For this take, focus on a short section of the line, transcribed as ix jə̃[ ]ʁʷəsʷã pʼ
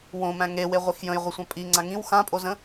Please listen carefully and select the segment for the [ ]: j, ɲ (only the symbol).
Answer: j